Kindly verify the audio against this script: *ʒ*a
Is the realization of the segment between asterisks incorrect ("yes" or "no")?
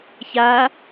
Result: yes